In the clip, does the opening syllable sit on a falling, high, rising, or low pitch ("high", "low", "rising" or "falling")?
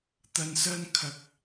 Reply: low